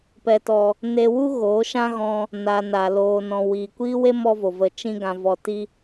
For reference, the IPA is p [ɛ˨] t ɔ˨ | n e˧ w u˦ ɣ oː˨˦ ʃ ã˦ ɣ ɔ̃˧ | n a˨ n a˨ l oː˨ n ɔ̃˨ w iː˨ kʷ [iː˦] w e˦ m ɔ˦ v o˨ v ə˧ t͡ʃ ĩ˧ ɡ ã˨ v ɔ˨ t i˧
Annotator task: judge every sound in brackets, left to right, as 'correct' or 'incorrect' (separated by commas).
correct, correct